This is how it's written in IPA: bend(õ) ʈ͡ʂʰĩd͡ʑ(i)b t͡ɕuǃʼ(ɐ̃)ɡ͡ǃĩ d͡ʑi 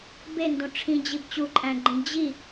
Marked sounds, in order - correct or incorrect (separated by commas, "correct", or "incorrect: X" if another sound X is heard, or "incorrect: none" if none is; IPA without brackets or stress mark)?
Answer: correct, correct, incorrect: æ̃